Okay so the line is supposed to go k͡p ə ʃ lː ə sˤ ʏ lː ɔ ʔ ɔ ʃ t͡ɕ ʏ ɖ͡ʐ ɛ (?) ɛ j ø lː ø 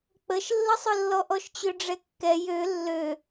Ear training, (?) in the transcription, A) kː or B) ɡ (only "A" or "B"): A